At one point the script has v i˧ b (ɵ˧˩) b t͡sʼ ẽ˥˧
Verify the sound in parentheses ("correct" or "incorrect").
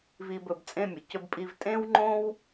correct